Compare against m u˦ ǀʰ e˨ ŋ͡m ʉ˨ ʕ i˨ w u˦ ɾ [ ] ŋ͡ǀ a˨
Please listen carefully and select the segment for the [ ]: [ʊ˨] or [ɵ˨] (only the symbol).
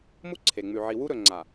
ɵ˨